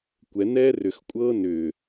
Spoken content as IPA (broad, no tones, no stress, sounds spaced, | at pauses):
kʷ ɛ n ɛː r ʏ x kʷʼ ɤː n ʏː